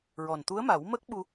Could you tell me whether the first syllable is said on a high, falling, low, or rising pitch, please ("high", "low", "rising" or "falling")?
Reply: low